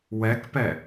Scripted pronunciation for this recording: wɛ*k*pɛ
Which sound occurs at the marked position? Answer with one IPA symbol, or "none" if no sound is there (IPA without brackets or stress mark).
k